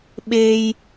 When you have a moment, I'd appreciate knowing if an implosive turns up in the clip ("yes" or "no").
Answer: yes